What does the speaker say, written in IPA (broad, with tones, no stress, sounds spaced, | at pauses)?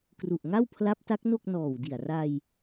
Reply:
k r u˨˩ ʔ ŋ a˥˩ w pʰ l a˦˥ p̚ t a˦˥ k̚ n o˥˩ k̚ n ɔː˨˩ w d i˨˩ a̯ r a˧ j